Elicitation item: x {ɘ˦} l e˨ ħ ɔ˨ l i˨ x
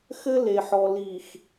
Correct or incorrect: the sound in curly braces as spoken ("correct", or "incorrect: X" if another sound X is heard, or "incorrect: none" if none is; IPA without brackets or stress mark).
correct